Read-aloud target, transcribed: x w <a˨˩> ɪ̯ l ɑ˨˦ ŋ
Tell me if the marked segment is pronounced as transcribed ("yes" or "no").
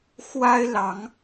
no